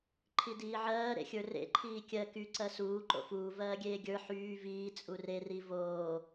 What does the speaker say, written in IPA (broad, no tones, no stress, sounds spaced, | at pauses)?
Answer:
ǃʰ i d iː ʕ ɜː ɾ ḛ xʲ ə˞ r ḛ ǃʰ iː kʲ ɜ k y ǀ ɜ s uː ǃ o̰ f uː v ɜː ɡʲ eː ɡʲ ə˞ ħ yː v iː t͡sʼ u r e r i v oː